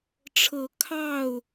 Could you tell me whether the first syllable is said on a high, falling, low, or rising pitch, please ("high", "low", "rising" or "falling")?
rising